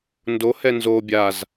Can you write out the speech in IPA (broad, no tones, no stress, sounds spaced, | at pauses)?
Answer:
n d o h ɛ n z o bʲ a z